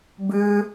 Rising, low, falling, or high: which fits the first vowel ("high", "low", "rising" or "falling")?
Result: high